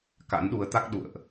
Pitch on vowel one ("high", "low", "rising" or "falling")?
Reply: rising